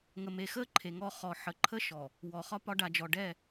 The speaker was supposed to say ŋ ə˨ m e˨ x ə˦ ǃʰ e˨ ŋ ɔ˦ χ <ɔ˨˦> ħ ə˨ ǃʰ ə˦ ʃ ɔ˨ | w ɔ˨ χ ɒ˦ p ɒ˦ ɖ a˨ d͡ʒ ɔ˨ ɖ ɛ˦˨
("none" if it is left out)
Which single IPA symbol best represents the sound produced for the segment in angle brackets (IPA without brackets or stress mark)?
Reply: ɔ˨